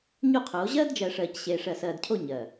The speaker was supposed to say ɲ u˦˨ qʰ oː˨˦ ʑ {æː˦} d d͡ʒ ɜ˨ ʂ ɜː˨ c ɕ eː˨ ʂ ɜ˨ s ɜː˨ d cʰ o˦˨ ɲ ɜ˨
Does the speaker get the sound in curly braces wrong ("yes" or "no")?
yes